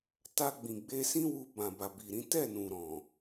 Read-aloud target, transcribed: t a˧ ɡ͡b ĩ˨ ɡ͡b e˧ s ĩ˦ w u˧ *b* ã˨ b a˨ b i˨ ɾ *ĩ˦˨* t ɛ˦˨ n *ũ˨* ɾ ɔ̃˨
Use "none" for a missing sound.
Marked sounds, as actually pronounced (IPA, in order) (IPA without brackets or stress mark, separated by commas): b, ĩ˨˦, ũ˨